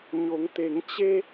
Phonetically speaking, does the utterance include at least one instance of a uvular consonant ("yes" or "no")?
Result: no